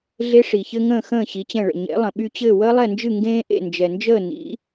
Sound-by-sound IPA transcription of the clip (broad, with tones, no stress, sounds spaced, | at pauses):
ɮ e˥ ʂ i˩ ç ɘ˥ ŋ ə̃ː˥˩ x ə̃ː˥˩ ɕ i˩˥ t͡ɕ ɛ̃˥˩ ɭ ə̰˩ ɲ ḛ˩˥ lˠ ə̃˩ ɓ y˧ t͡ɕ ɘː˥˩ w əː˥ lˠ ɛ˥˩ n d͡ʒ ɨ˥˩ ŋ ɡ ẽː˥ ʔ ḛ˥˩ n d͡ʒ ɛ˩ n d͡ʒ əː˥˩ n ḭ˩˥